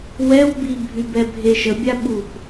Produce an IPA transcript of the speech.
w ɛ w b i bʱ y b ɛ bʱ e ʃ ə bʲ a ɓ u p

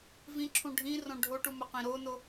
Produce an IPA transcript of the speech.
v ĩ ǁʰ ũ ɖʱ ĩ r õ ɖʱ o ʈ u m ə q ĩ ɾ o n o

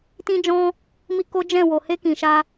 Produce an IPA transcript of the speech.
t ĩ˦ d͡ʒ ɔ̃˦ | m i˧ k o˦ d͡ʒ ɛ̃˦˨ w o˨ h e˧ k ĩ˨ ʃ a˧

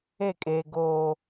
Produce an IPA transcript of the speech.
e˦˨ kʼ eː˨ ɡ oː˨

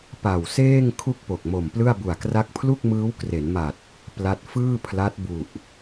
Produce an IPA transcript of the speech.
p a˨˩ w s eː˥˩ ŋ kʰ u˥˩ k̚ p o˨˩ k̚ m o˨˩ m p l ɯ˥˩ a̯ b u˨˩ a̯ k r a˦˥ k̚ pʰ l u˥˩ k̚ m ɯː˦˥ w k r e˩˦ n m a˨˩ t̚ | p l a˥˩ t̚ f ɯː˥˩ pʰ l a˦˥ t̚ b u˨˩ ʔ

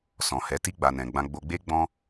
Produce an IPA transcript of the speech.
s ɔ̃˨ h ɛ˨˦ t i˦ ɡ͡b a˧ n ɛ̃˧ ɡ͡b ã˧ ɡ͡b o˧ ɡ͡b e˦ ɡ͡b ɔ̃˦

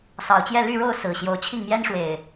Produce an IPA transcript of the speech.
s ɑ˨˩ ʊ̯ t͡ɕ j ɛ˥˨ l y˥˨ ɻ o˥˨ ʊ̯ s ɹ̩˨˩ ɕ j o˨˦ ʊ̯ t͡ɕʰ i˥˨ ŋ m j ɛ˦ n ʂ w e˨˩ ɪ̯

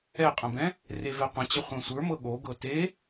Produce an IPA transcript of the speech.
ɛ qʼ ə̃ b ɛ̃ | r e v ɛ qʷ ə̃ t͡ɕ ə χʷ ɛ̃ sʷ ə˞ m ɤ ɠ o ɡ ɤ t e

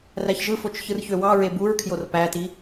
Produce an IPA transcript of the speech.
r æ ç ʒ ɯ f o t͡ʃ ç ɯ r ç ø w ɑ ɹ e b u ɹ kʰ j o r p æ t i

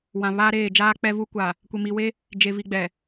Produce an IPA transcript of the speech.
w ã˨ β aː˦ ɾ eː˦˨ d͡ʒ aː˦ k͡p ɛ˦ v u˦ kʷ a˨ | kʷ e˨ m i˨ w e˦ | d͡ʒ e˨ v i˨ ɡ͡b ɛ˨

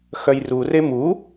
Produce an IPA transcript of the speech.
x œ j r u r e m u

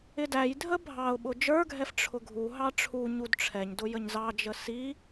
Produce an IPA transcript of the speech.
ɪ d æ j dʱ ə bʱ ɑ ʊ̯ ɓ ʊ d͡ʒ ə˞ ɡʱ ɛ f ʈ͡ʂʰ ʊ ɡʱ u ɦ ɑ ʈ͡ʂʰ u ɲ u d ʈ͡ʂʰ ɛ ɲ d ʊ j ə ɲ z ɑ d͡ʒ ə s i

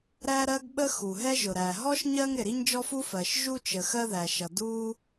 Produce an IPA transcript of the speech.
ɾ æ˥ ɾ ɜ˥ ɡ ɓ ə˥ x u˩ ɦ ɛ˥ ʒ ʊ˩ ɾ æ˩ ɦ ɔ˥ ʃ ɲ ɜ˥ ŋ ɾ ɪ˩ ɾ i˥ ɲ d͡ʒ ɔ˥ f u˥ f ɜ˩ ʃ ʒ u˥ t͡ʃ ə˩ x ɜ˥ ð æ˩ ʃ ʌ˩ d u˥

